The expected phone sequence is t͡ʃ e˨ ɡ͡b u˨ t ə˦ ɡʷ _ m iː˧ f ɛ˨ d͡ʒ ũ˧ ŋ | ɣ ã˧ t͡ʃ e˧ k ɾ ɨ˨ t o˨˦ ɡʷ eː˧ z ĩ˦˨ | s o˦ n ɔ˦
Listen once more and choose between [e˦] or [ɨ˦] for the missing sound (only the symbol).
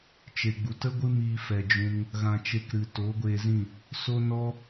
ɨ˦